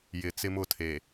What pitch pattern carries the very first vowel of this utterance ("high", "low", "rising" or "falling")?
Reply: low